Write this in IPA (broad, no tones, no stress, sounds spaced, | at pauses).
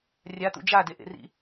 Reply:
rʲ a t̪ ṵ d͡ʒ a d e ʔ ḛ r ḭ